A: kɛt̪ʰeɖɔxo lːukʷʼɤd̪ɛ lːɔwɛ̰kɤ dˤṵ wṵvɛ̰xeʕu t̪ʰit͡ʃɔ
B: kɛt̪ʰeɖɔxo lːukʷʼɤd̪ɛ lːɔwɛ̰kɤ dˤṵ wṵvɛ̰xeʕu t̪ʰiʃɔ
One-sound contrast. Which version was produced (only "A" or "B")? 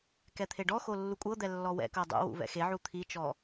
A